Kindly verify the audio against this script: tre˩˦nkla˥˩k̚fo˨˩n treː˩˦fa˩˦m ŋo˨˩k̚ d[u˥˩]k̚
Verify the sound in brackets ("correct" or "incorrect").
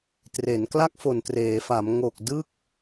incorrect